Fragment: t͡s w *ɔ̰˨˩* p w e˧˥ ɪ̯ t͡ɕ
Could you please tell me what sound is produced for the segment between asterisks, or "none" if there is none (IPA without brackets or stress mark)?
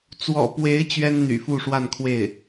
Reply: ɔ̰˨˩